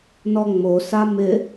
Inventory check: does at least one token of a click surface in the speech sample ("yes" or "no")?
no